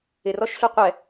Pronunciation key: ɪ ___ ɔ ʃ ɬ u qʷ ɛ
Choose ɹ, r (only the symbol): r